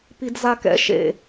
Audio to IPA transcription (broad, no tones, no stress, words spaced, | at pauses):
pidzakɛ̰ ʃḛ